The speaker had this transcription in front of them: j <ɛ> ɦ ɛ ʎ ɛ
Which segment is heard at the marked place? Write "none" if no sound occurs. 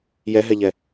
ɛ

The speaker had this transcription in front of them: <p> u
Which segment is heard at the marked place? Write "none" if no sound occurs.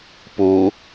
p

